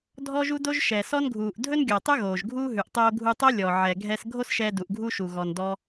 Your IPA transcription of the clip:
dʱɔ˥ʒu˥do˥ʒ ʃɛ˩sɔ˥nɡʱuː˩ʔ dʱɵ˥nɡʲɔ˩tˤɵ˥ ɣoː˩ʒɡʱuː˥ ɦʉ˩ʔtˤoː˧ ɡʱu˧tˤo˥ lʲɔ˩ ʕɛ˩ ɡʱɛ˧s ɡʱo˥sʃɛː˧ du˩ʔɡʱu˥ʃu˩ ɣɔ˩ndɔ˧

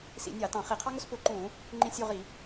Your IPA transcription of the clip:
sḭ˧˩˧nʲɑ˧˩˧ tɑ̃˧˩˧χi˧˩˧qʰɑ˥ŋʊ˥s pʊ˧˩˧ǃũ˧˩˧ | ŋ͡ǃĩ˦˨sʲu˦˨ʁi˧˩˧

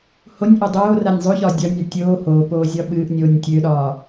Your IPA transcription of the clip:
honʲʔo dˤoː ranʲzˤoçɒ dʲɒnʲa tʲoː hoːpoː zʲɒɓɨːʔnʲoːnʲ tʲøɗɒː

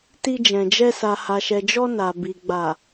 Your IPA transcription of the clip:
ti˧d͡ʒɛ̃˨d͡ʒɛ˧ sa˨ ha˨ʃɛ˨d͡ʒɔ˧ na˨bi˨ ɡ͡ba˨

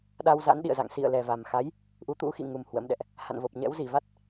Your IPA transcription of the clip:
ɗa˧wza̰˧˥nɗḭ˧˨ə̯za̰˧˨ŋ sḭ˧˨ə̯lɛ˨˩va˨˩mxa˨˦j | ʔu˨˦t̪ṵ˧˥xḭ˧˨ŋu˨˩m hwə̰˧˥mɗɛ̰˧˨ʔ | ha̰˧˨nvo˨˩p̚ɲɛ̰˧˥w zi˧˩va˦˥t̚

